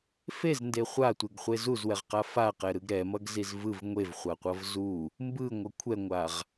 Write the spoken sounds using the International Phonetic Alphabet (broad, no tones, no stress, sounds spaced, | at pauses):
f e z n d e χʷ a tʷ e ɡ χʷ e z u z w ɛ ʁ q a f a q ɛ ɾ ɯ ɡ ɾ ɛ m ʌ ɡ z i z v ɯ v ŋʷ e v χʷ a qʷ ʌ v z u | m b ɯ ŋʷ ʌ kʷʰ ɛ ŋʷ a ʁ